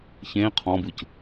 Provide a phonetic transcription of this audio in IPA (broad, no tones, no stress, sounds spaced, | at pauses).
ç ẽ qʰ ɔ̃ b ɯ c